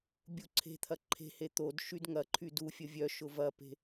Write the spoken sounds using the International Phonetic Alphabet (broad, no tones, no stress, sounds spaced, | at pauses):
bʲ u ǀʰ e̤ t̪ʰ ɐ ǃʰ e̤ h e t̪ o d ʃ y d ŋ ɐ ǃʰ y d u fʲ ə vʲ œ ʃ ʊ v ɐ p e̤